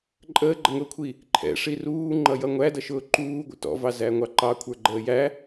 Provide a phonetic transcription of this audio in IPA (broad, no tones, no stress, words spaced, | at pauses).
ǃʼəːɡ͡ǃəŋʊːkʷʰi | ǃʰɛ̰ʂi ruːŋ͡ǃʌjʌ ŋʷædʌʃʊː ǃuːɡʷə̰ tɔ̰vɑzæŋʷɑ ǃɑkʷʰə˞ɡ͡ǃəː jæ